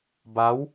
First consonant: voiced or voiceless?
voiced